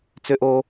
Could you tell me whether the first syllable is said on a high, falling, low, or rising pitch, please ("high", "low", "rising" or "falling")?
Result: high